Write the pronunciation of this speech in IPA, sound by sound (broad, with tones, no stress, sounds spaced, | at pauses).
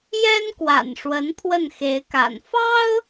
j ɛ˥ n k w a̰˨˩ n ʂ w ə˧˥ n pʰ w ə˥˩ n x e˧˥ ɪ̯ k a̰˨˩ n f ɑ˥ ʊ̯